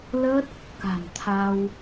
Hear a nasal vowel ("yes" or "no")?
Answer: no